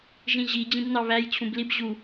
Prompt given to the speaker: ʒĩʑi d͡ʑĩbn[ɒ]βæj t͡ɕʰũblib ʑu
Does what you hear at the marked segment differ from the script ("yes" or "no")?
yes